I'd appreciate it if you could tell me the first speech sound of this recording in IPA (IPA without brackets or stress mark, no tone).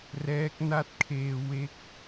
r